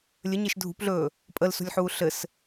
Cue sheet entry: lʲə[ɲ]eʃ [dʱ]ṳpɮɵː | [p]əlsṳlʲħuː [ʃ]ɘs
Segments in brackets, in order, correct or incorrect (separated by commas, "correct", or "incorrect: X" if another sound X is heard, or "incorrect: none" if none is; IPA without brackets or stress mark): correct, correct, incorrect: pʼ, incorrect: ɬ